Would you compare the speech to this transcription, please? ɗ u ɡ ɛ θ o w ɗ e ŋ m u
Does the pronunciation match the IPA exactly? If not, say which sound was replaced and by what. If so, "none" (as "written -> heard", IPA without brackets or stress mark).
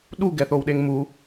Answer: none